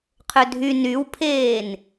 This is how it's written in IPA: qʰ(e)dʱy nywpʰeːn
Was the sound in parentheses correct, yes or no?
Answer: no